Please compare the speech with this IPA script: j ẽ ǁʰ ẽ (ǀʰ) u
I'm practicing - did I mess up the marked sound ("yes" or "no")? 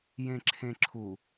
yes